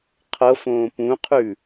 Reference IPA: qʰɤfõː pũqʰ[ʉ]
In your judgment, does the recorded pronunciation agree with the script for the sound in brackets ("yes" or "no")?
yes